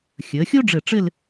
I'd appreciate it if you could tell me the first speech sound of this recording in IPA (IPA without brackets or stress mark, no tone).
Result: xʲ